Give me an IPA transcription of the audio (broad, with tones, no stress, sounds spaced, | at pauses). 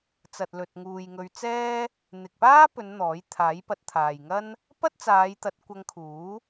t͡s ɐ˨ t̚ l ɵ˨ t̚ ŋ uː˨ j ŋ ɵ˧ ɥ t͡s ɛː˥ | n̪ ɪ˨ k̚ p aː˥ p ɵ˨˧ n n̪ ɔː˨˥ j t̪ʰ aː˨˥ j p ɐ˨˥ t̚ t̪ʰ aː˨ j ŋ ɐ˥ n | p ɐ˥ t̚ t͡s aː˨˧ j t̪ ɐ˨˥ t̚ kʷ ɐ˧ ŋ kʰ uː˨˥